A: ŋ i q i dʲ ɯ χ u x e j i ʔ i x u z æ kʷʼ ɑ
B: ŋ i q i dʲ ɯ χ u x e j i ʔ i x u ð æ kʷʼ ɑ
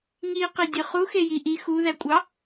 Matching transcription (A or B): B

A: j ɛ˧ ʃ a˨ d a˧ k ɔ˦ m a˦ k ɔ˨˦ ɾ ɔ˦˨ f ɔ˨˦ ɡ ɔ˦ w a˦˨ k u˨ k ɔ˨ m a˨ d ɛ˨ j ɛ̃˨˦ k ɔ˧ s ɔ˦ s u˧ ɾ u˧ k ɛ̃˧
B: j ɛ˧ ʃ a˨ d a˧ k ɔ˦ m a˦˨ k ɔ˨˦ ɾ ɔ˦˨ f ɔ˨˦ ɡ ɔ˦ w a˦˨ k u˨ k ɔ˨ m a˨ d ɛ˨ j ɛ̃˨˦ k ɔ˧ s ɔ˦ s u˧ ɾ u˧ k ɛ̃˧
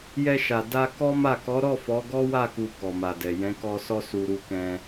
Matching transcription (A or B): B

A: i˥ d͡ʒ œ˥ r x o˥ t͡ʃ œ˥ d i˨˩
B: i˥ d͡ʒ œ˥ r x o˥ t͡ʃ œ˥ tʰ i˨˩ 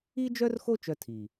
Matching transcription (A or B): B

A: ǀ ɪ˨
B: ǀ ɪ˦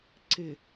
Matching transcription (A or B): A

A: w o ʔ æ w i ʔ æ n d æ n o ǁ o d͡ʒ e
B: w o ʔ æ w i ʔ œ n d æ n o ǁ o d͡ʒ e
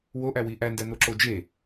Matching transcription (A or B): A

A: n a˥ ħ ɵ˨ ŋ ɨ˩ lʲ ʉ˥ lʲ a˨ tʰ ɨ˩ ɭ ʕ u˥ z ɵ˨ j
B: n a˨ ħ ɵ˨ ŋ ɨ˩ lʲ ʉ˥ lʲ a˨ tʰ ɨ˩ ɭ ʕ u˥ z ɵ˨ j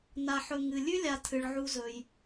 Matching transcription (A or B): B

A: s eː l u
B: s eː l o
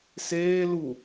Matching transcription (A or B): A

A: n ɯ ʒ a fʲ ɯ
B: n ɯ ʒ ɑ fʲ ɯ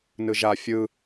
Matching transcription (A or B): A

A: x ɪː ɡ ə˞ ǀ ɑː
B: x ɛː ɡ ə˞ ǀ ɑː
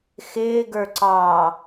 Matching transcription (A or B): A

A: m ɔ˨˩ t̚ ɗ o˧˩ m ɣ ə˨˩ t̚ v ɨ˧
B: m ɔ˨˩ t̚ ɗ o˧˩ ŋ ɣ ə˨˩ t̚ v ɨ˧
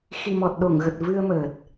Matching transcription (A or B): B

